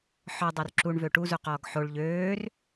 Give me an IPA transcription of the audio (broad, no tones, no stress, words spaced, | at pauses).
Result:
ħɔdˤor ǁuɳvø ʈuzuqɔːɡ ħoɭ ʎøːr